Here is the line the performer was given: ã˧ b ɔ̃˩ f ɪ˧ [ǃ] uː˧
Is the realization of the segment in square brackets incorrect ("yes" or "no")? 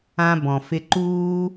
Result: no